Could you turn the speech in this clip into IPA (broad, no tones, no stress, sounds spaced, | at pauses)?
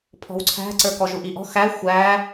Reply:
pʰ ɔ̤ w ǀʰ æ̤ ǀ ə˞ k ɔ ʒ u ʔ i ʔ ɔ̤ x æ xʷ æ